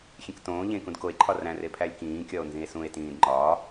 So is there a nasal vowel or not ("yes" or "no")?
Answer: yes